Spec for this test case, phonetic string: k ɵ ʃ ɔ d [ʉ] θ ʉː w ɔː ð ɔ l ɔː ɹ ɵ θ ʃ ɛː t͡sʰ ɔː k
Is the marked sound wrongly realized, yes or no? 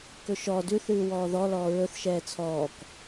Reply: no